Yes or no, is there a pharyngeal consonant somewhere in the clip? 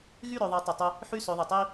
yes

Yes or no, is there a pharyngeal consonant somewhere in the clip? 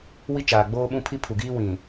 no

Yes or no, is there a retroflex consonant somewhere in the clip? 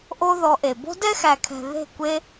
no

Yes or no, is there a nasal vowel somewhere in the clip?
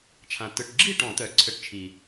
yes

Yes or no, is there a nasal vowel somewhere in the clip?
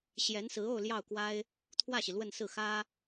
no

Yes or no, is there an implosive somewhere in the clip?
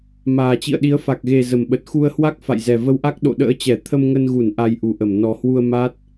yes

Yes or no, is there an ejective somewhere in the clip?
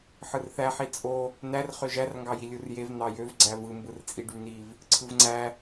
yes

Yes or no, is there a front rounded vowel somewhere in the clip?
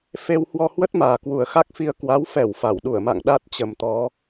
no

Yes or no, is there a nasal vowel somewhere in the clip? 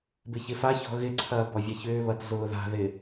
no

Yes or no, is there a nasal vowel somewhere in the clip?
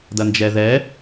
no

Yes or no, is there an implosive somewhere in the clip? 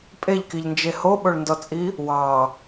yes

